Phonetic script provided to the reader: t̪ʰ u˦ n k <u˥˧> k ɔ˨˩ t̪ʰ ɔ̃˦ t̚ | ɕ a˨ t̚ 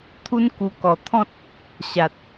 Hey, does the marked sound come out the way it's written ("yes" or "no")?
no